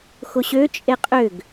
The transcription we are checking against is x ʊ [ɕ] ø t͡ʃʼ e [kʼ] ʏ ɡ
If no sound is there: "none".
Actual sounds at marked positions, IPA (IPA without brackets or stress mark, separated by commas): ɕ, qʼ